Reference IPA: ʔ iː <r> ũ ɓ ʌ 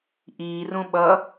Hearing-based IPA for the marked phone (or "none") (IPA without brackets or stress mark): r